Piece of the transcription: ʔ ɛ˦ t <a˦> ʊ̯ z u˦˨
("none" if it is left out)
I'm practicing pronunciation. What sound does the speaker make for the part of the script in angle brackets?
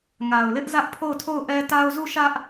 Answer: a˦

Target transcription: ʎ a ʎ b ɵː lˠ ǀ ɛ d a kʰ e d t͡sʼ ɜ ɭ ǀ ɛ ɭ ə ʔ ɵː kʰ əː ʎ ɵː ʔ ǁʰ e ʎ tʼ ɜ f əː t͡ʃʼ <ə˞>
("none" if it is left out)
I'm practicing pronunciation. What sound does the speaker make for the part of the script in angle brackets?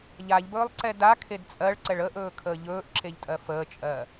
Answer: ɜ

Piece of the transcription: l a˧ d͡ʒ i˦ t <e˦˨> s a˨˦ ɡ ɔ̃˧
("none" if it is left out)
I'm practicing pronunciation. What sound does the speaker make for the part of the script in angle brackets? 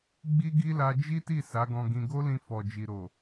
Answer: i˦˨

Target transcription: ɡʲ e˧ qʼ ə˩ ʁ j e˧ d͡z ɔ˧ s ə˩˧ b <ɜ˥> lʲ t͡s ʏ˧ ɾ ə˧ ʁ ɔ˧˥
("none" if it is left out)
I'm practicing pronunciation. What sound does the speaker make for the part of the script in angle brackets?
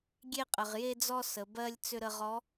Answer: ɜ˥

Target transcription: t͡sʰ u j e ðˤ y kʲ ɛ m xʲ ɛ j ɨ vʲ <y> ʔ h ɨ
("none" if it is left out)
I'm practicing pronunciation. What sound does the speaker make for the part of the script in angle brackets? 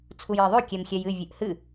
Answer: ɨ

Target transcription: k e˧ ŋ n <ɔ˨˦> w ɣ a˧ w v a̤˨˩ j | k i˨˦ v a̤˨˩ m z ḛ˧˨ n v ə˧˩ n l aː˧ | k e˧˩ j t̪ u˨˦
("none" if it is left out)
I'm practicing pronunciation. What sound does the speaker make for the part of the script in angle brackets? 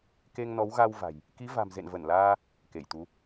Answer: ɔ˨˦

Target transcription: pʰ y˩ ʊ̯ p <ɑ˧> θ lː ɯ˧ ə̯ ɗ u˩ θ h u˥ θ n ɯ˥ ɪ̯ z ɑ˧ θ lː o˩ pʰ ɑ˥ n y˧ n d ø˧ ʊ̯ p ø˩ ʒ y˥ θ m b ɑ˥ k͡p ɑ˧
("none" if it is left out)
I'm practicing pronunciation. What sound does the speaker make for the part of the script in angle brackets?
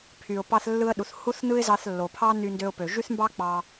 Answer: ɑ˧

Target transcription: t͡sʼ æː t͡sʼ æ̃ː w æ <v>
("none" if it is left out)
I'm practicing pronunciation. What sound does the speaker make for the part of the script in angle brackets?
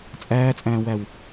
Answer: w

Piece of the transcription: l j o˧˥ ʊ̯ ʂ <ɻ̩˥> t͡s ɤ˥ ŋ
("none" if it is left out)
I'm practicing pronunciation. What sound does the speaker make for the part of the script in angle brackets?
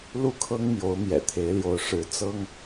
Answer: ɻ̩˧˥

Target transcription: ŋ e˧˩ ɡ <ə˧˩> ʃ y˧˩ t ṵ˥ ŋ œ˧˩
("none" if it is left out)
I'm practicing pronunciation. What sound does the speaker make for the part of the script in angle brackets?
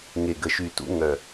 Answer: ə˧˩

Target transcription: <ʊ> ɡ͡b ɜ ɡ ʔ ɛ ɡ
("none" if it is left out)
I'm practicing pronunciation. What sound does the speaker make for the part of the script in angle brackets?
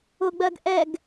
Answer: ʊ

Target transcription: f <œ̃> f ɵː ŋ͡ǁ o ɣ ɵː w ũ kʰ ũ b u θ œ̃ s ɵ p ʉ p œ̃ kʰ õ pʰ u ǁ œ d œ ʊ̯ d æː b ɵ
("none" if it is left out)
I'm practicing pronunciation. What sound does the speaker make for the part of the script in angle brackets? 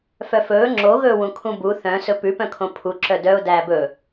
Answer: œ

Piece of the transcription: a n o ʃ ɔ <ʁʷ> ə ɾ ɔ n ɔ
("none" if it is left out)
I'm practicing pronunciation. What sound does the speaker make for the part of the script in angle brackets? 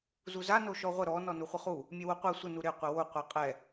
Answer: ʁʷ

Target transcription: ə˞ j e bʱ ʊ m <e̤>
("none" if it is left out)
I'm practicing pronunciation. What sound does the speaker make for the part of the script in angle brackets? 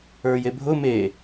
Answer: e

